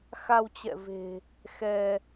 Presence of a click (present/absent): absent